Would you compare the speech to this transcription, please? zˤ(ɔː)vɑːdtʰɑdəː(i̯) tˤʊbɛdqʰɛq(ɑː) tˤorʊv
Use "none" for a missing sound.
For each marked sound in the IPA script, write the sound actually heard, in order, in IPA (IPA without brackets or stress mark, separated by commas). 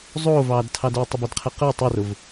oː, u̯, əː